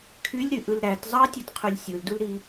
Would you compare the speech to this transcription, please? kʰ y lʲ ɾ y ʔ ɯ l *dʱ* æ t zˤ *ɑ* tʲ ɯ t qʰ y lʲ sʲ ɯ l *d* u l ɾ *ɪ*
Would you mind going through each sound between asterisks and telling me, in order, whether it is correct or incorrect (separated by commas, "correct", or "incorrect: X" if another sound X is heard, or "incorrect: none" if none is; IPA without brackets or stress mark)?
incorrect: ɾ, correct, correct, incorrect: i